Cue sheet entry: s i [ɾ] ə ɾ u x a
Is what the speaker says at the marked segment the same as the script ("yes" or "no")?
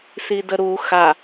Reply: no